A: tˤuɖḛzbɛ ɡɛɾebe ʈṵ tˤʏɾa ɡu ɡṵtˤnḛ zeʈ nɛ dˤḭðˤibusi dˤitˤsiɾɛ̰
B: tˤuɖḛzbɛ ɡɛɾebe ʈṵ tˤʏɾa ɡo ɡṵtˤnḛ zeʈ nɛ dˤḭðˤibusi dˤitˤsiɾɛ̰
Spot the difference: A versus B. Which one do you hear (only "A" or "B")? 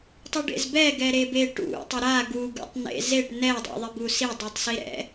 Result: A